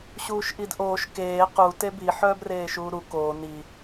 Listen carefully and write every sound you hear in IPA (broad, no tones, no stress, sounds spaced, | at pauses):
ɕ uː ʃ ʔ i d ʔ oː ʃ k eː q u t e b i ħ œː b r eː ʃ uː ɾ u k oː n i